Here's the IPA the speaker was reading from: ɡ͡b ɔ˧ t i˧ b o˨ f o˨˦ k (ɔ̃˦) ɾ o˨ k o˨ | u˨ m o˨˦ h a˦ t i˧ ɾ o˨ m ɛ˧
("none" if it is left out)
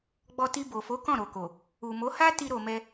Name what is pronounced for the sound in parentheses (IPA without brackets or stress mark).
ɔ̃˦˨